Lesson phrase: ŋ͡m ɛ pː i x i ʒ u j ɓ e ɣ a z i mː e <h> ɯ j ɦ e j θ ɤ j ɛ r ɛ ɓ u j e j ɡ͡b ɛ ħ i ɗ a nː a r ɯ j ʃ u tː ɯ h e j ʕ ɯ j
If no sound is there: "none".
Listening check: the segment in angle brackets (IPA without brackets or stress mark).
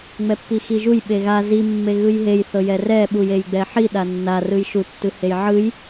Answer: ɣ